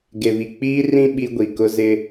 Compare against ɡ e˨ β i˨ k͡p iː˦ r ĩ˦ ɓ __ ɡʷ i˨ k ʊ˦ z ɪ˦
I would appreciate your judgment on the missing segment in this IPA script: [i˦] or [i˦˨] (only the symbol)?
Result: i˦